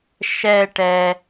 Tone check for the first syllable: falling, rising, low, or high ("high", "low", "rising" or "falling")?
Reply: falling